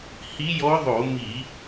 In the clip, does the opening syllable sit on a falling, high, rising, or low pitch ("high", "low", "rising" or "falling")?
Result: rising